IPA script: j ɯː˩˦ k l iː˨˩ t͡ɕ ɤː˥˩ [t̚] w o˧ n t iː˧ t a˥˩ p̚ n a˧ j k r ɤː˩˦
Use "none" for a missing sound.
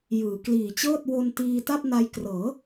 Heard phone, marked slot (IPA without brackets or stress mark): t̚